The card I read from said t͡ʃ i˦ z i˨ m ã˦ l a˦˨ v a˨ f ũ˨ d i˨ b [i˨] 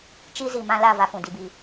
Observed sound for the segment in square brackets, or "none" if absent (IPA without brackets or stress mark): i˨